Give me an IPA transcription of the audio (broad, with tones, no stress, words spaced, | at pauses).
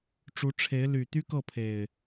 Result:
ʈ͡ʂu˨˦ʈ͡ʂʰe˨˦ɪ̯ ly˨˩ t̪y˦kɤ˥˨pʰe˨˩ɪ̯